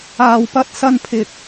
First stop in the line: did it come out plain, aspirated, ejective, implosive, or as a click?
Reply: plain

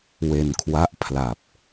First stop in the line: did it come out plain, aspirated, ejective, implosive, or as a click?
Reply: aspirated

